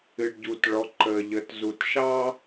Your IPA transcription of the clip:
ɨ˩ɖɟu˩tɭɔ˩˧ ǃə˩ʎə˩˧tzu˩tʃɑ˥

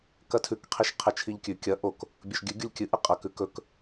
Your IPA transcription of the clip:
kɐtʰʉk qʰiʃqʰet͡ʃʰiʎkʲʉ kʲɐ ʔok | bʲɵʃɡʲʉ ɡʲulʲkʲɨ ʔɨqʼɐ kʉkɵk

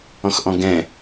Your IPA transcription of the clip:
ɔ̃xʔɔ̃ɡɛ̃

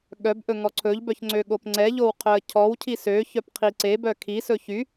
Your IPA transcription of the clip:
ɠœbʔɵ ŋɔǀʰɵʎbœç ŋ͡ǀøɠopŋ͡ǀɛʎow qʰœə̯cʰɔwcʰi søçœp qʰiǀebœ kʰisɵ çy

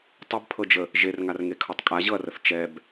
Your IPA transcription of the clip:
tˤɘbpʰɤd͡ʒə | ʒerŋarŋekʰɤtˤ kʼaʑɤɐ̯rəθ t͡ʃɛb

